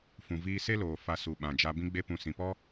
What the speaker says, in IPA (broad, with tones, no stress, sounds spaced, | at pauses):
f ũ˨ v iː˧ s e˦ l oː˨ f a˧ s u˨ ɓ ã˨ d͡ʒ a˧ b ĩ˦ ɡ͡b e˦ p ũ˧ s ĩ˨ p ɔ˦